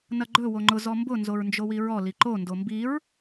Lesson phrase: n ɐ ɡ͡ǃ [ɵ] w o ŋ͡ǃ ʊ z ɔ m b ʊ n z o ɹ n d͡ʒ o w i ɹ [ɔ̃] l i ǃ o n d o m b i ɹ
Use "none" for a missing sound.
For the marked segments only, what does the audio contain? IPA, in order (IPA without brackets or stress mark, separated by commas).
ɵ, ɔ